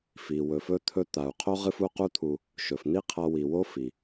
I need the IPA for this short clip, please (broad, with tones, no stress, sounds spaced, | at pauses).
f i˩ w ɵ˩ f ɵ˧ t̪ʰ ɵ˧ t̪ a˩ u̯ qʰ o˥ ʁ ɨ˧ f u˧ q u˥ t̪ʰ u˧ | ʃ ɵ˩ f n̪ i˥ qʰ a˧ w i˩ w o˥ f i˩